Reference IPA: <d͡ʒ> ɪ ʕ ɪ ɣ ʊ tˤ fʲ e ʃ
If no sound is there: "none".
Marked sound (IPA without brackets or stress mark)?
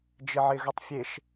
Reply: d͡ʒ